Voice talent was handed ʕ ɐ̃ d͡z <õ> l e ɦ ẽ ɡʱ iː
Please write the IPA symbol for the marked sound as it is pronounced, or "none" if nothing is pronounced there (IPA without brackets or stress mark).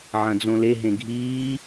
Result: õ